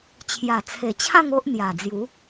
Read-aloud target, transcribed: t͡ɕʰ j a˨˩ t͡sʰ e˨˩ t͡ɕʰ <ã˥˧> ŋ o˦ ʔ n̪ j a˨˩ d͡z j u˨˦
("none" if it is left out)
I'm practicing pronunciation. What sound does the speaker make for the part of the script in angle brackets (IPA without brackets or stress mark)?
ã˥˧